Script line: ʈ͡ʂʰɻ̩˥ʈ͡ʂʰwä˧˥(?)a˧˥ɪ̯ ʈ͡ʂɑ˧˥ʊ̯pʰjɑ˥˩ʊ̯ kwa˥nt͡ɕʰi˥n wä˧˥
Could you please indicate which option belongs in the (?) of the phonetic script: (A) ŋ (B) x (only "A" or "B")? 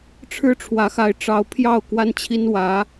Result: B